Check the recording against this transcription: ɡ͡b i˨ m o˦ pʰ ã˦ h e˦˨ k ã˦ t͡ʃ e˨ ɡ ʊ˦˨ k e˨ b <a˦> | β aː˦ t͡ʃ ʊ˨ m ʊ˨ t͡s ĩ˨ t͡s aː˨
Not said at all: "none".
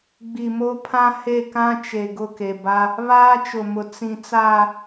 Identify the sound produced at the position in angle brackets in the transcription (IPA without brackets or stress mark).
a˦